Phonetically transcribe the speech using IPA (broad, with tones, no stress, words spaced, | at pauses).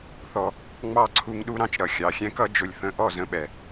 θɔ˧ | ŋ͡mɑ˦˨ǀʰu˧ŋɗu˦ ɾɑ̃˦t͡ʃɾʌ˨ xʲɑ˨xʲɛ̃˦kʌ˦d͡ʒʊ˧lʲ θə̃˧ʔɔ˦˨zə̃˧ɓɛ˨